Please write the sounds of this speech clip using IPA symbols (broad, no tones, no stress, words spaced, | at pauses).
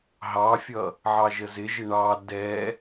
ɦɑfʲʌ | ʕɑʒəzɪʒɪ ɳɑ dɛ